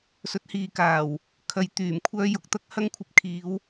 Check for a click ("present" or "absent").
absent